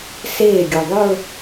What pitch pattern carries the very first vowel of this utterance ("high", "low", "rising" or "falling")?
falling